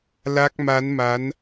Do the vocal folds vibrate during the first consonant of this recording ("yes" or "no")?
yes